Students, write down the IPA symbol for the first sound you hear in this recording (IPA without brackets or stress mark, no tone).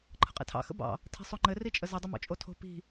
ǃʰ